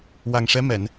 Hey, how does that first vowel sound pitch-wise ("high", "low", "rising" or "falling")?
low